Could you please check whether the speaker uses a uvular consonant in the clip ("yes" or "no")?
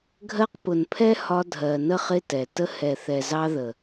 yes